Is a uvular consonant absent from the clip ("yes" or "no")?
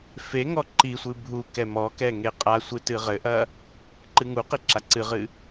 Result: no